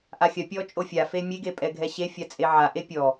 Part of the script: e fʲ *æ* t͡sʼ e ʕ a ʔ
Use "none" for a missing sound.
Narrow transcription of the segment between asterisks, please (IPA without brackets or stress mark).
a